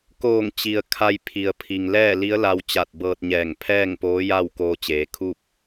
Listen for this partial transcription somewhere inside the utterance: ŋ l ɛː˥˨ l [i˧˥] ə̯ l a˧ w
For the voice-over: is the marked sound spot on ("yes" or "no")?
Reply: yes